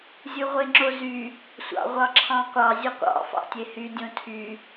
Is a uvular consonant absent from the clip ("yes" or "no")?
no